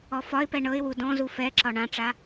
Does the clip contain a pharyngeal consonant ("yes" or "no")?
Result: no